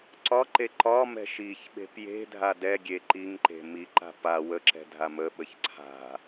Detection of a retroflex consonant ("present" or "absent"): absent